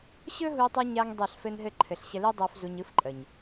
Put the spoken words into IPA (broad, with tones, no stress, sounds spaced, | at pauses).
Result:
ɕ ɵ˦ ɦ u˧ tˤ ɯ˧ ɲ a˧ ŋ dˤ ɛ˦˨ ɬ f ɘ˦ n ɦ ɘ˦ ǃʰ ɘ˨ ɬ ɕ ə˧ l i˦ dˤ o˧ f z u˧ ɲ ɯ˦ f ǃʼ ə˨ ɲ